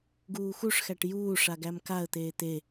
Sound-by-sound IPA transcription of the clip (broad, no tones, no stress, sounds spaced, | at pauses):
ɡ uː x u ʂ x æ ʈ j uː ʂ a ɡ æ m k a ə̯ t̪ eː t̪ e